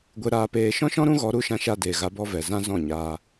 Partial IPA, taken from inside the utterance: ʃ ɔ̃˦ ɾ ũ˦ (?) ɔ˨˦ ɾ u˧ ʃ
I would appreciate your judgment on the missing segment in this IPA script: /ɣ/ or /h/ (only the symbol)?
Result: ɣ